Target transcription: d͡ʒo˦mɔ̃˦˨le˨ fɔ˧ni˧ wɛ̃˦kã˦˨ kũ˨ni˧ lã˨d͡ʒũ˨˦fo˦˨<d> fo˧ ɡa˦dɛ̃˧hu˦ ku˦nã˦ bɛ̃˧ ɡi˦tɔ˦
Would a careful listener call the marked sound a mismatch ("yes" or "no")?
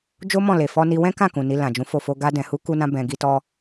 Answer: yes